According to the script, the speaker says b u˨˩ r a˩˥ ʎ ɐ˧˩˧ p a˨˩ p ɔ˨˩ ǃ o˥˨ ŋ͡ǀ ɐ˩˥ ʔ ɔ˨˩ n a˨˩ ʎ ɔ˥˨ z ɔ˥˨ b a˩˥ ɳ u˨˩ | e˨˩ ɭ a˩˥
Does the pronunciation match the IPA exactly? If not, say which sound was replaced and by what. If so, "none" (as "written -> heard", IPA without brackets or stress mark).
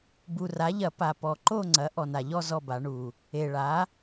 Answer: none